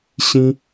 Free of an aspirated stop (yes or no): yes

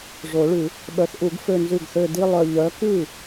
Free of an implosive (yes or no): no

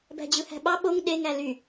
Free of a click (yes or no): yes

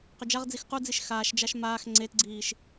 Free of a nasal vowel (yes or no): yes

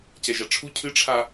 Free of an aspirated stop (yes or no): no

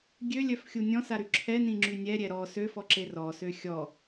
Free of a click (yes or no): no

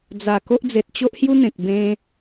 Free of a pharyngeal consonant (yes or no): yes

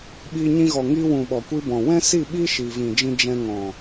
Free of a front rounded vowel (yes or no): yes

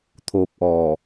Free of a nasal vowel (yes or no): yes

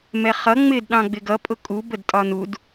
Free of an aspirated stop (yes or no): yes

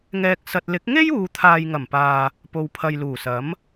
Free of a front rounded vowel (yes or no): yes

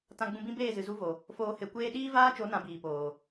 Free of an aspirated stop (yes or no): yes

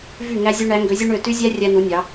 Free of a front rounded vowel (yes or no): no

